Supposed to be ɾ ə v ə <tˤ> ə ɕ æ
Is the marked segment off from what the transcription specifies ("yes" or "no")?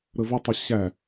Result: no